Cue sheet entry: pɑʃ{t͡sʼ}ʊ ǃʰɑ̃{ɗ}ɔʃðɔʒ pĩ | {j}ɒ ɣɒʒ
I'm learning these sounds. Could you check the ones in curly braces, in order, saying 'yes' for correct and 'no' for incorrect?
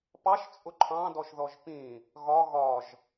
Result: yes, no, no

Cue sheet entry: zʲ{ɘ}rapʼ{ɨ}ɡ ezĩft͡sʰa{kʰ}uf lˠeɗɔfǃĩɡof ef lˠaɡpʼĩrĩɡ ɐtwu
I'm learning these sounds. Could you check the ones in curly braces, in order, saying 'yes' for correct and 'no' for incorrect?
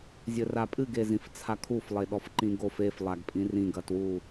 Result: yes, yes, yes

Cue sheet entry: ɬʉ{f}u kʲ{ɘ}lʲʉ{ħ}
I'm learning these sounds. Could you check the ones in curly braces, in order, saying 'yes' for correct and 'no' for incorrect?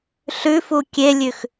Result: yes, no, no

